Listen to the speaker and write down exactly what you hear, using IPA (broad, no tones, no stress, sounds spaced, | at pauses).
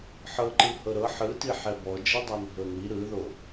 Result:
ħ ɤ ǃ ɯ h ɤ ɾ ɤ ħ ɯ t i ħ ɛ b ɔ d͡ʒ ɛ dˤ a n ɦ ɤ n i ɾ ɯ ð o